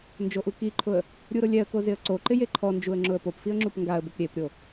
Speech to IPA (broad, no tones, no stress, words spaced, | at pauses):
nd͡ʒoʔukiǃʰʊə̯ | ɾʲuɾʊlʲɛə̯ko zɪə̯ǀoǃɪ jeǃʰɔnd͡ʒuə̯ ŋ͡ǁʊə̯popfiə̯ ŋ͡ǁupŋɡaə̯bʊp ɾʲepɾʲo